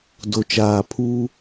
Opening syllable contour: low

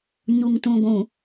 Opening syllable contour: low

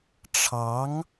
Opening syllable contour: rising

